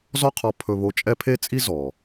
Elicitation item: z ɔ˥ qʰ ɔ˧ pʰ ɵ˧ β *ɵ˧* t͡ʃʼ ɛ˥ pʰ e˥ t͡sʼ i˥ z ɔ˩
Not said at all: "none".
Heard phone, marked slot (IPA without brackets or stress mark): o˧